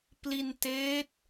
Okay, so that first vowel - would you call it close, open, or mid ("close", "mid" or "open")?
close